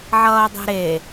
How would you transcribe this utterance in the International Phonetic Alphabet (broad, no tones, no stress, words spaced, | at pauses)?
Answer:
ʕʌːdˤɛ̤ɾe